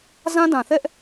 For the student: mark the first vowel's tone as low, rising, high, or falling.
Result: high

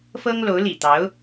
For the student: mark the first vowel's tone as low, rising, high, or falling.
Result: high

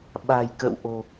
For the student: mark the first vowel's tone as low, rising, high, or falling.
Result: low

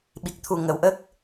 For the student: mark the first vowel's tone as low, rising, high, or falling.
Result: low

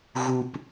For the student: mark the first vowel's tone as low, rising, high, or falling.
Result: high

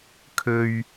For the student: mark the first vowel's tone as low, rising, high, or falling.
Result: low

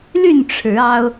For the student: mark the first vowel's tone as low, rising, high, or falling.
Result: falling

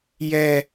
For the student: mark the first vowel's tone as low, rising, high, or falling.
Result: high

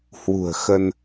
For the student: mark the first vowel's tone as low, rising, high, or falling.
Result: low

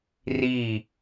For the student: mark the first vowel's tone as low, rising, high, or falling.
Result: falling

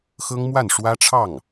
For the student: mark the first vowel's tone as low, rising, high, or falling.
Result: high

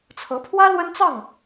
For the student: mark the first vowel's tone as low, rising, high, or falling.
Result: rising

